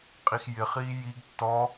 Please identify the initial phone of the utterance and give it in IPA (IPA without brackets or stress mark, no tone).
qʼ